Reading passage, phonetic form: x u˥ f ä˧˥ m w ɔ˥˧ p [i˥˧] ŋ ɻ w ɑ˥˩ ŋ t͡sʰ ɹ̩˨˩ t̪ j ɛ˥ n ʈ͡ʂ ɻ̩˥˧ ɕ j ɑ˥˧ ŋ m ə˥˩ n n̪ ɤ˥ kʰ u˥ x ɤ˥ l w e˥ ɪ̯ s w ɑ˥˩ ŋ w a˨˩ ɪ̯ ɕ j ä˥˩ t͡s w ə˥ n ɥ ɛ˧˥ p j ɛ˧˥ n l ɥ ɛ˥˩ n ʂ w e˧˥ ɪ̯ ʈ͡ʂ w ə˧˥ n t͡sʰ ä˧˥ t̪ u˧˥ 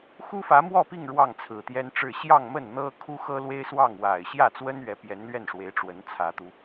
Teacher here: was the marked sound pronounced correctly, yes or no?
yes